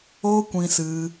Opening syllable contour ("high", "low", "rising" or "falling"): high